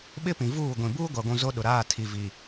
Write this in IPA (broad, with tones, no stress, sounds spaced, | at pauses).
ɓ ɪ˦ p ĩ˨ v uː˦˨ ɡʷ ĩ˨ b uː˦ ɡʷ a˨ ɡʷ ũ˨ z o˦ ɗ ʊ˨ ɾ aː˦˨ tʰ i˨ v i˨